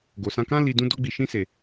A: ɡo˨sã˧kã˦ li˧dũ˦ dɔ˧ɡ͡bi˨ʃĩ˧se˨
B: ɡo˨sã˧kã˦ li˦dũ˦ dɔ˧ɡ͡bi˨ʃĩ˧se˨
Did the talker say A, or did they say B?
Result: A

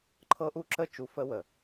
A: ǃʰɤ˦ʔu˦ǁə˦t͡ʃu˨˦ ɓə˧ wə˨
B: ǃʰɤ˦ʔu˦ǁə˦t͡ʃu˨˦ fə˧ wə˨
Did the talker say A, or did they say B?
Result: B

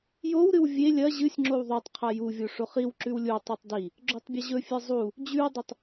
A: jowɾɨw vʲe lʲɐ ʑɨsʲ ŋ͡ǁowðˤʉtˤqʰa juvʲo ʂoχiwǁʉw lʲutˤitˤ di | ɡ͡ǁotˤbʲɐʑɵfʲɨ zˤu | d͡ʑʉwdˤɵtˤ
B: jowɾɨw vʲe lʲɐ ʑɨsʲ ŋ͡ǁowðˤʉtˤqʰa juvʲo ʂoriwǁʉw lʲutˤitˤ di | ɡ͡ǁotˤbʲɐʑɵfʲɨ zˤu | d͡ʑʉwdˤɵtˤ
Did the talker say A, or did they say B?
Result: A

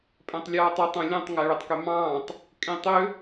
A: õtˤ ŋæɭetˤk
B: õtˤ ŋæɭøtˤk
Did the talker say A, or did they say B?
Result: A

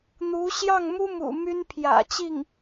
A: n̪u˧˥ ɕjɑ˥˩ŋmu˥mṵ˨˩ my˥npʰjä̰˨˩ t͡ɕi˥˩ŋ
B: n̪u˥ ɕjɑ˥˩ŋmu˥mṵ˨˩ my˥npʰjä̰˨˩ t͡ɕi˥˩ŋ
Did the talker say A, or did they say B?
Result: A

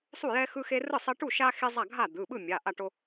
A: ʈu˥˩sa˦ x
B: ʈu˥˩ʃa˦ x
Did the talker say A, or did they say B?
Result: B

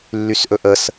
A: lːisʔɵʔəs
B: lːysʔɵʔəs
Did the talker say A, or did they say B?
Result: B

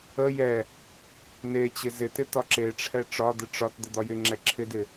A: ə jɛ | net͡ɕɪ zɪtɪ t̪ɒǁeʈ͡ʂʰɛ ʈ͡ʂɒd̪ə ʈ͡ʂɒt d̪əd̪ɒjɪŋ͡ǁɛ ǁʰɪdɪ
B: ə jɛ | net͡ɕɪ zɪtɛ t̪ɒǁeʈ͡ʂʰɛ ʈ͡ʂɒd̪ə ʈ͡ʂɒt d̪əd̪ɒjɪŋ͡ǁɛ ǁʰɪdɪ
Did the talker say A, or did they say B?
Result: A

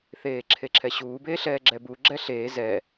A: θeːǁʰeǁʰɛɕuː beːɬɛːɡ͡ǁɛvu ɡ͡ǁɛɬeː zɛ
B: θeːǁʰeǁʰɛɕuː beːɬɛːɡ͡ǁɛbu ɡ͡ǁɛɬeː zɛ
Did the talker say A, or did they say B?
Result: B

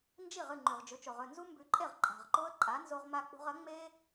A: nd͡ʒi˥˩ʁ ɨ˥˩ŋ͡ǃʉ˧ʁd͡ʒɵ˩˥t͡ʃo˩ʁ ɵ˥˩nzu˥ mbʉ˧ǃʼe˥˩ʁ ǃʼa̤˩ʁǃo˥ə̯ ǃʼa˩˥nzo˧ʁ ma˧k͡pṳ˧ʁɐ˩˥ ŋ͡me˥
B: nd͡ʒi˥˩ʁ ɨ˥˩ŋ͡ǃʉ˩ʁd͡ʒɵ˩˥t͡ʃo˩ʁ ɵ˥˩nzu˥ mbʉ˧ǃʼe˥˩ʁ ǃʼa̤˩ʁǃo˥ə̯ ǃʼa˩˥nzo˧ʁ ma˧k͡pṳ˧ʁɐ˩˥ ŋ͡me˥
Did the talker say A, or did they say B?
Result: B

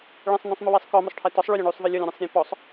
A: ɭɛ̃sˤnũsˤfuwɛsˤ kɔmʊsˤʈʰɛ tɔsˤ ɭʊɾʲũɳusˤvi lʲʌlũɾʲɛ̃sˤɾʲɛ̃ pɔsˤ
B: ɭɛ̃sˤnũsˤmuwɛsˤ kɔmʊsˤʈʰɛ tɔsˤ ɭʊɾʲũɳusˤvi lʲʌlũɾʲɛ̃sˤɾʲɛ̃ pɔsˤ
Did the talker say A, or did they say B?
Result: B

